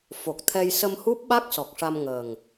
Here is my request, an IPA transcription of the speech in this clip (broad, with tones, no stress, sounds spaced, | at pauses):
f o˨˩ k̚ t̪ʰ ɛ˧ j s ə˧ m h u˦˥ p̚ ɓ a˦˥ k̚ s ɔ˨˩ k̚ ʂ a˧ m ŋ əː˨˩ ŋ